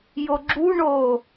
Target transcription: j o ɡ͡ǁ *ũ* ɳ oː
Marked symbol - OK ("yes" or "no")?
no